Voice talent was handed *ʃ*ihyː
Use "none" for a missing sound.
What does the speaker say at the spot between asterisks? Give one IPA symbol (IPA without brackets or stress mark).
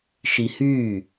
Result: ʃ